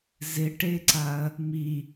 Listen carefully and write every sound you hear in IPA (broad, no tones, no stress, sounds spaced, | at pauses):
z ɪ ʈ e ǀ a ɐ̯ | m i